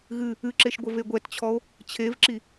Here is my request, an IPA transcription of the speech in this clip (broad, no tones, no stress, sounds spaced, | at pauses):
ɣ ɨ | ɨ ǁ e ʃ ɡʷ ɘ v e ɡʷ ɛ t t͡ɕʰ ɔ o̯ | t͡ɕʰ e v ǁ i